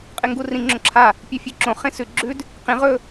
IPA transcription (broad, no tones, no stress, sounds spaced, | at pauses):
qʼ e ŋ ɡ u r ĩ ŋ͡ǁ õ ǁʰ a | pʲ ʉ fʲ ʉ ǁ õ χ ẽ s ʉ ɡ͡ǁ ʉ d | q ĩ ʁ ɵ